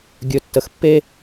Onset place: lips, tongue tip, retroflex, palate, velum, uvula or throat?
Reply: velum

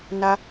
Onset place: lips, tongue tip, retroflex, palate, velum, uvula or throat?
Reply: tongue tip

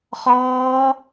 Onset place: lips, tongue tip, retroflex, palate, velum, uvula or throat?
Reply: uvula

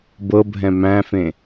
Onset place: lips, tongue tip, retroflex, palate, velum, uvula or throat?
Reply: lips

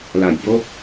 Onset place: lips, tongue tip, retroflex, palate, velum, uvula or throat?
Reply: tongue tip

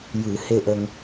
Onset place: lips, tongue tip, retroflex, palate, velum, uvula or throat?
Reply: palate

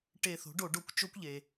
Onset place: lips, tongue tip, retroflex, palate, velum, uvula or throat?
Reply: retroflex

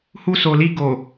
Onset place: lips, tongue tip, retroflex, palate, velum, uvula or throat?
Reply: throat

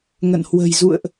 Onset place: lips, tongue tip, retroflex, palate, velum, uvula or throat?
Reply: velum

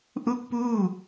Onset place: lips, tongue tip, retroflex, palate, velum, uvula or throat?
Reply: throat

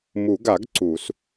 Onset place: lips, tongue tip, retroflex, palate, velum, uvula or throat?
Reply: lips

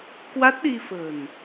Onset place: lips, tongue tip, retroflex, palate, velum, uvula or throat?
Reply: velum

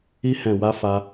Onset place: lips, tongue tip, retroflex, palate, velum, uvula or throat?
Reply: throat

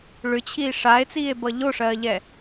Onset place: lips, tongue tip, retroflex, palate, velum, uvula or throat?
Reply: retroflex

